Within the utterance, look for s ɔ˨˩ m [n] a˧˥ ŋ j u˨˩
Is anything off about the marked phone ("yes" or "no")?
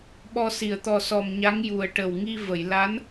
yes